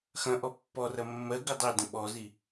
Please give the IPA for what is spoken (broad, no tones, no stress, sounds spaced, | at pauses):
x ɐ̃ ʔ ɔ pː ɔ r ɐ mː ɜ ɡ ɨ dˤ e d ə̃ ɓ ɔ z i